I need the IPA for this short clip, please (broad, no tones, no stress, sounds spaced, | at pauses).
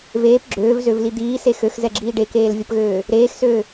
v eː p ɡ͡ǁ øː v z ø v l i d̪ iː s e x ø x z ɛ ɡ͡ǁ iː ɖ e k eː l vʲ ə p ɣ øː | ɾ eː x s øː